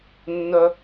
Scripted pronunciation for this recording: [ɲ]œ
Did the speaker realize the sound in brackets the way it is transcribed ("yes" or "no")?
no